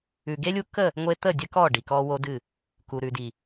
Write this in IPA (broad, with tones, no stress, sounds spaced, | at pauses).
ʉ˨ ɡ e˦ lʲ u˦ k ə˦˨ | ŋʷ e˦ t̪ ə˦˨ dʲ ə˦ k ɔ˦˨ ɖ i˨ k ɔ˦ w o˦ d ɨ˦˨ | k u˨ ɾ ʉ˨ d i˨